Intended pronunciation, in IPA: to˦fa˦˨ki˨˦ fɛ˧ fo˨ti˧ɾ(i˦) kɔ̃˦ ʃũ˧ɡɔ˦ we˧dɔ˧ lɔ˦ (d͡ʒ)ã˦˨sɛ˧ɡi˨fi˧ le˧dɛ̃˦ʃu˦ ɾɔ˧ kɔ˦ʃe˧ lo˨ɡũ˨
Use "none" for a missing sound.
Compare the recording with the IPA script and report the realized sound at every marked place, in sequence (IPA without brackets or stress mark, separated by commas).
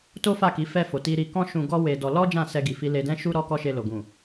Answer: i˧, d͡ʒ